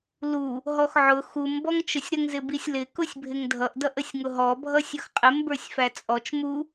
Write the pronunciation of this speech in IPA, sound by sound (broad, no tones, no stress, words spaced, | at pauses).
lu | ɦɔxʕʊ xum bɔŋt͡ʃʊsʲɾəŋ zɪbisʲlɪ kʊsʲbʱɪŋdʱʌʔ dʌʔəsʲŋʊɦɔ bʱʌsʲʌxqʼɪm bə˞sʲfæt͡sʼɔt͡ʃ mu